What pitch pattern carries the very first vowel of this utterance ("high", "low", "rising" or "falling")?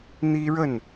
high